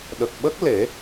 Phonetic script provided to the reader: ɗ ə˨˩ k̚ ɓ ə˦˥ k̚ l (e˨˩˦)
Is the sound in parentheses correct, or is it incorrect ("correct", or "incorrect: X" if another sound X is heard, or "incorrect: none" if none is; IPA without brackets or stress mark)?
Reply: correct